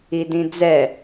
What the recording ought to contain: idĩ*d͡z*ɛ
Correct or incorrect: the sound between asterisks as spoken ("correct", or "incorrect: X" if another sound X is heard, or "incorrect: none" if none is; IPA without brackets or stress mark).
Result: correct